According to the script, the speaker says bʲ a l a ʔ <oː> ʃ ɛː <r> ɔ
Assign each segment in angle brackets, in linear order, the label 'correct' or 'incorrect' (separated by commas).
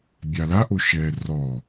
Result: incorrect, correct